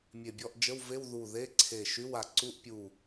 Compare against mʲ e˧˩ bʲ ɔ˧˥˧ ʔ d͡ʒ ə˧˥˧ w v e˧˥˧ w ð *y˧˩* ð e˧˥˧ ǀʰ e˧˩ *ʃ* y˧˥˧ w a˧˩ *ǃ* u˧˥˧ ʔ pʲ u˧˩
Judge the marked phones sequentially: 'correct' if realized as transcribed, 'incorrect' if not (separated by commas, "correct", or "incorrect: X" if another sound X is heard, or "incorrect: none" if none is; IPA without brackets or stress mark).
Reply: incorrect: u˧˩, correct, incorrect: ǀ